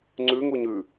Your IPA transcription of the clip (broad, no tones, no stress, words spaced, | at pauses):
ŋ͡ǀʉŋuɲ ʉ